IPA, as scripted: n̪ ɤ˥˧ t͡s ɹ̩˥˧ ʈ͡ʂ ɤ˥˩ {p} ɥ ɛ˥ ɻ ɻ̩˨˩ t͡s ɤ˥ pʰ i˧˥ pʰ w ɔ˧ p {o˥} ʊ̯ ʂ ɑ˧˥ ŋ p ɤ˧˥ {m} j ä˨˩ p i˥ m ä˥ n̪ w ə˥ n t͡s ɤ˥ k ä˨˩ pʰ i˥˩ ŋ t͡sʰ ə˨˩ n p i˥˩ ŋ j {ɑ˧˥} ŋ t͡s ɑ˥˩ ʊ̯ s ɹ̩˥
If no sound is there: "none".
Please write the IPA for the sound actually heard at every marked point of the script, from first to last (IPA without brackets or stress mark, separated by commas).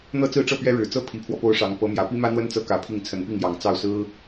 p, o˥, m, ɑ˨˩